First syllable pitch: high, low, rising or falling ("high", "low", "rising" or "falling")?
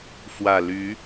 low